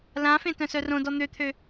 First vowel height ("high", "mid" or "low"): low